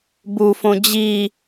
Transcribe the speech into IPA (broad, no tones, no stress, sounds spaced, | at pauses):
b u f õ d͡ʑ i